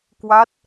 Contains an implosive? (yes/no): no